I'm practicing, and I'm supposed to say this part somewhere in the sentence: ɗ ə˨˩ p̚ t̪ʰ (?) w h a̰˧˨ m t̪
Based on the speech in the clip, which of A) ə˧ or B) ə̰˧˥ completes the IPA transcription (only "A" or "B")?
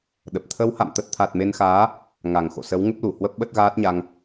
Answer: A